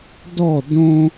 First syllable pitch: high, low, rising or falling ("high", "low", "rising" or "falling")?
falling